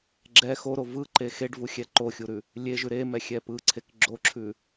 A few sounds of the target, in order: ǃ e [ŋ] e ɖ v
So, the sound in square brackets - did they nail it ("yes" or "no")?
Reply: no